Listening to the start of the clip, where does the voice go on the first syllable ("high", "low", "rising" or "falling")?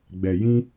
low